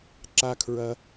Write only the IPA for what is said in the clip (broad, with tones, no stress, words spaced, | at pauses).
ǁa˦kʰɹɐ˦